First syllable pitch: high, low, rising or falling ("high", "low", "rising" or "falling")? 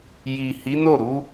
low